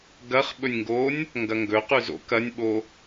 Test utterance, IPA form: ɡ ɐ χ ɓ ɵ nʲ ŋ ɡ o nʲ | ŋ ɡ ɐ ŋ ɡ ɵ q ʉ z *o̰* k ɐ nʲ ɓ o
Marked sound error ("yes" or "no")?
no